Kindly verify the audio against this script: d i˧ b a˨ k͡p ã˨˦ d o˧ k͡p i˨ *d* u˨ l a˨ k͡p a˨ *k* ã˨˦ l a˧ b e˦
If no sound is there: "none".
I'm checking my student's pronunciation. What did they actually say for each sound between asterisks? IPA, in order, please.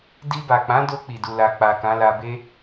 d, k

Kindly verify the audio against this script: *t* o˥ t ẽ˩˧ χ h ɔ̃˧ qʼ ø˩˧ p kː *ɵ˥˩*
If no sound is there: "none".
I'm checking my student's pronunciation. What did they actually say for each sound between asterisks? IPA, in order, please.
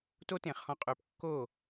t, o˥˩

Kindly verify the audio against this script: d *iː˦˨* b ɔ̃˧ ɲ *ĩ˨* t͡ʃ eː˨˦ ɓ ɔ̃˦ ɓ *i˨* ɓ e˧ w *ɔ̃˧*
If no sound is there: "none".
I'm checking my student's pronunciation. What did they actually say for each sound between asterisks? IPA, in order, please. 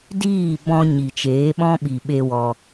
iː˦˨, i˨, i˨, ɔ˧

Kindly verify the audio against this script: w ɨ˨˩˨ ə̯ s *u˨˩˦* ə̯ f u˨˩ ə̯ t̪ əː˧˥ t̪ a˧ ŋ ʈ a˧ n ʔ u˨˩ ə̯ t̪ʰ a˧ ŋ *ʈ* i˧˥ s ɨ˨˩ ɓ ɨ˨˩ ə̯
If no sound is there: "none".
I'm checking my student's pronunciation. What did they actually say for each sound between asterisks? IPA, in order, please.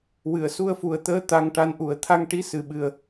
u˧, ʈ

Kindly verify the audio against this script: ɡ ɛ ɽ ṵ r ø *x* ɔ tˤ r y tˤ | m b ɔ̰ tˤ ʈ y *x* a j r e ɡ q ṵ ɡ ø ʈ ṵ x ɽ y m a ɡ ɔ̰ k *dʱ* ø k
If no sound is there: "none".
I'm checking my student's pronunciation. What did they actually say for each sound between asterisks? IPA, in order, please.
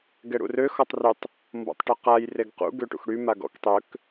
x, q, tˤ

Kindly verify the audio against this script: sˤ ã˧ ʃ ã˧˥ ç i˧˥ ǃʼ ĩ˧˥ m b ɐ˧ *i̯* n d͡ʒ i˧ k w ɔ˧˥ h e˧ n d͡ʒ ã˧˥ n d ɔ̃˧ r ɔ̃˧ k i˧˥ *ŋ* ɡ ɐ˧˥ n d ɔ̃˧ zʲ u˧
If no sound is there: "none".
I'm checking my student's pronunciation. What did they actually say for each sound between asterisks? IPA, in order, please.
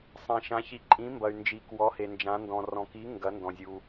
y̯, ŋ

